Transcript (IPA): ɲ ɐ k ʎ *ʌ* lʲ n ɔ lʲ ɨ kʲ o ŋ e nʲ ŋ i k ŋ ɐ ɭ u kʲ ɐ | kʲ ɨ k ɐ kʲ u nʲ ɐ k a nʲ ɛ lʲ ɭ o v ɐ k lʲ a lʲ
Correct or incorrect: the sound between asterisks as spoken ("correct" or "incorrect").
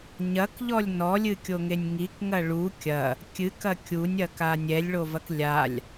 incorrect